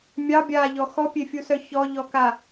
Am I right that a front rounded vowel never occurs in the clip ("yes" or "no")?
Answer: no